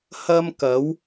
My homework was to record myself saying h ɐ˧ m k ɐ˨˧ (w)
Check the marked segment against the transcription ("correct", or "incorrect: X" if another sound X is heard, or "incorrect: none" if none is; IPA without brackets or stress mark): correct